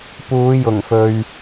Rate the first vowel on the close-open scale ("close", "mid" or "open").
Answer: close